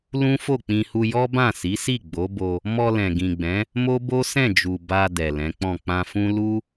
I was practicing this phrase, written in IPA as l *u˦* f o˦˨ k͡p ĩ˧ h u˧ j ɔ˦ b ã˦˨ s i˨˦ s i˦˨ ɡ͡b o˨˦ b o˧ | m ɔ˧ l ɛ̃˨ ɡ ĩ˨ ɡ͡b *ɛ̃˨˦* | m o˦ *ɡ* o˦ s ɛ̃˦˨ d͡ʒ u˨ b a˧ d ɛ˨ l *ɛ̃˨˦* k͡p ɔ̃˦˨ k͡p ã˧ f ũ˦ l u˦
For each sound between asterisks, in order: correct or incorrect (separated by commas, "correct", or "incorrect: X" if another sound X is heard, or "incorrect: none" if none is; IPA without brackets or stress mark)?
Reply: incorrect: ũ˦, correct, incorrect: b, correct